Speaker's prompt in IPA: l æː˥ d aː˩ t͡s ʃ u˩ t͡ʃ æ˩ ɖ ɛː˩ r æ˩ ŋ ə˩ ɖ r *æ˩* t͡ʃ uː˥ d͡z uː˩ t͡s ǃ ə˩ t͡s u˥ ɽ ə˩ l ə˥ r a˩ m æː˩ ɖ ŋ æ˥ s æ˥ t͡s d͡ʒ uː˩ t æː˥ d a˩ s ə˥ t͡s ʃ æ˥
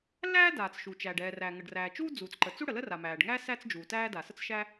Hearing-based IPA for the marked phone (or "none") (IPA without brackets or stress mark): æ˩